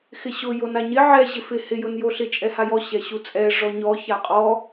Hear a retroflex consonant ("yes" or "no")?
yes